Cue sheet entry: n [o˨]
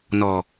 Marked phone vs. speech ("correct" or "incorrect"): incorrect